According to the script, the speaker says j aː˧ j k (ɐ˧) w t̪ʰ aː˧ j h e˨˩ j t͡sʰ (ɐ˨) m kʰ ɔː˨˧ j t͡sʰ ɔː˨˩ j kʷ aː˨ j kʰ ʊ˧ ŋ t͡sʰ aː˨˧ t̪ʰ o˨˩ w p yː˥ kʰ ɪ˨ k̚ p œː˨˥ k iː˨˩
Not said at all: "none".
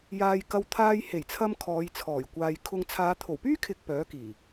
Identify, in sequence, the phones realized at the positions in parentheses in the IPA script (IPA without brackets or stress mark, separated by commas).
ɐ˧, ɐ˧